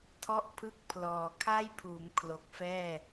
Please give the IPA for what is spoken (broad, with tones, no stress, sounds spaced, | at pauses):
tʰ ɔ˦˥ ʔ pʰ ɯ˦˥ k̚ pʰ l ɔː˨˩ kʰ a˥˩ j pʰ uː˩˦ m kʰ l o˨˩ k̚ f ɛː˥˩